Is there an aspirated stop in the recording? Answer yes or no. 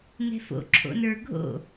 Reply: yes